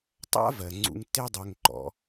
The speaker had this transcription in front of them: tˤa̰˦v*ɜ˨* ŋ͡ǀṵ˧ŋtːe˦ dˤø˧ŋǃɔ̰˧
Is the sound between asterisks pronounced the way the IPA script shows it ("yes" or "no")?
yes